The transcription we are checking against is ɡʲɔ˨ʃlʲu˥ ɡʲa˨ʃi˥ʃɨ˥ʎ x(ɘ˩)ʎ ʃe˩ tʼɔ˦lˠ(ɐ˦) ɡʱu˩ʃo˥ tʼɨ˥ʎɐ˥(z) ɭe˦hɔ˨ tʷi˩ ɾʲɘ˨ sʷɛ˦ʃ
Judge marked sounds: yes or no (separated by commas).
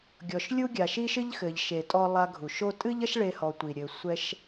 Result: no, no, no